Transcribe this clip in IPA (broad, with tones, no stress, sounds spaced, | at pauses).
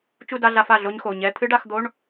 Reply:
t͡ʃ u˥˧ d a˧˥˧ ɮ a˧˥˧ f a˩˧˩ ɮ o˦˥ ɲ x o˩˧˩ ɲ ɛ˧˥˧ t̪ʰ ɨ˦˥ ɖ a˧˥˧ x d̪ o˧˥˧ ɳ